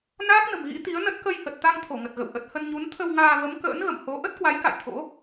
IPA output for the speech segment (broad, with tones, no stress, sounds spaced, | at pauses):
n aː˦˥ k̚ n ə̤˨˩ m ɣ ḭ˧˥ t̪ i˨˦ ə̯ n ə˦˥ t̚ k ə˧ j h ə˨˩ t̚ t̪ a˧ ŋ t̪ʰ o˧˩ ŋ ə˨˩ t̚ ɣ ə̰˧˨ w ʔ ə˨˩ t̚ h ə˧ n ɲ u˨˦ n t̪ʰ ə˧ w ŋ aː˧ v ə˨˦ m k ə̰ː˧˥ n ɣ ə̰˧˨ m h o˨˦ ʔ ə˦˥ t̚ k w a˨˦ j k a̰˧˨ j t̪ʰ o̰˧˥